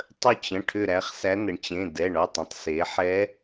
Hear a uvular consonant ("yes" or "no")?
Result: yes